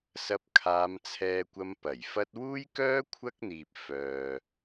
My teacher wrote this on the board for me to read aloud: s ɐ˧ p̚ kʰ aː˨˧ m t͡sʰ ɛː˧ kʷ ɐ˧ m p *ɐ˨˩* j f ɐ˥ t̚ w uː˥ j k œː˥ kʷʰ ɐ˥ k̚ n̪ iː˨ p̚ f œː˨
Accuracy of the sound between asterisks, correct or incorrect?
correct